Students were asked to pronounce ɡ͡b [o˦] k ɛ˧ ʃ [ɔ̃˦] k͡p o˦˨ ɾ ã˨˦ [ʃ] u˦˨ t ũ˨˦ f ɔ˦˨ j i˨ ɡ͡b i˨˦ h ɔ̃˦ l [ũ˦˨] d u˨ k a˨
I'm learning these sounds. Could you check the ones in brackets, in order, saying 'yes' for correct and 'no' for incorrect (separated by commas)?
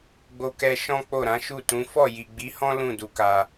no, yes, yes, yes